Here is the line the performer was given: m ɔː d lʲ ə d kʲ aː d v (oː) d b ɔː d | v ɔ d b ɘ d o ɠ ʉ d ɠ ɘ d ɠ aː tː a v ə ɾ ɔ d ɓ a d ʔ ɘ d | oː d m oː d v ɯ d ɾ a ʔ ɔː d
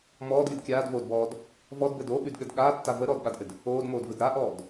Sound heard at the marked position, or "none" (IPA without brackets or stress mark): oː